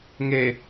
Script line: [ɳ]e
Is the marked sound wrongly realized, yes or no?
yes